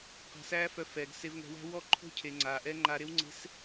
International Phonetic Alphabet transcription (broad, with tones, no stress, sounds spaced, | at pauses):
q a̤˧ s æː˦ f œ˧ f ɛː˨ ɡ s e˧ v ŋ ɛ̤˧ w æ̤˦ w ɔ˦˨ ǃʰ o̤˦ cʰ e˨ ŋ͡ǀ aː˨ ʔ ɛ˦ ŋ͡ǃ aː˧ ɾ e˦ w ŋ͡ǀ e̤˦ s